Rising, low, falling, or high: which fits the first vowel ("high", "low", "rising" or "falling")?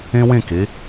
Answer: high